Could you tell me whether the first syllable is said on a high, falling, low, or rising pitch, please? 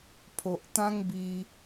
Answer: low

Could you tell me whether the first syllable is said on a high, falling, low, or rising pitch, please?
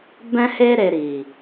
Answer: high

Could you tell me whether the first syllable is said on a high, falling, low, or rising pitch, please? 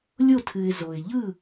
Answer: falling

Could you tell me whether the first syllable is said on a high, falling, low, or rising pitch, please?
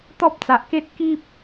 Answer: high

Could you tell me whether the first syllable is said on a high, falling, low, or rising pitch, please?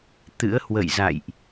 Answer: rising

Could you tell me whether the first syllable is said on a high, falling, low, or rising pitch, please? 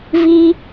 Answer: high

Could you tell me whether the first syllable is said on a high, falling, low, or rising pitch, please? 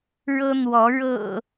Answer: high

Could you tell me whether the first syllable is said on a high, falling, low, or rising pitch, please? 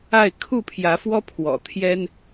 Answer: falling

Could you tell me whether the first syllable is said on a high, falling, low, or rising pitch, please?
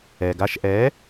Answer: low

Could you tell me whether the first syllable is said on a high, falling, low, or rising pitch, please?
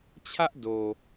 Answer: high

